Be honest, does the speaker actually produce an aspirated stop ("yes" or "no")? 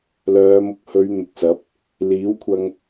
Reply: yes